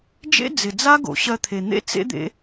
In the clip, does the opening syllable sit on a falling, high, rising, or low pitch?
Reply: high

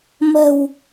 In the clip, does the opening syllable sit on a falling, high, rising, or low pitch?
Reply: low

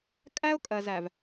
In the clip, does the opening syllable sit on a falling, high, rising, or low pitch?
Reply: high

